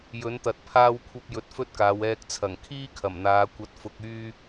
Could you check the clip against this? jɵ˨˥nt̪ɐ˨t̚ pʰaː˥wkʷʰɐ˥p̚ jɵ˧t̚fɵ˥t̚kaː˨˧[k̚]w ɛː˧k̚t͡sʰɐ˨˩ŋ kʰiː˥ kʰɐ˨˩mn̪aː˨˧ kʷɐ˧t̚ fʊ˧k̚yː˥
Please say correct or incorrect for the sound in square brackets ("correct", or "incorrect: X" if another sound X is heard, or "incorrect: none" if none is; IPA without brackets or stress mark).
incorrect: none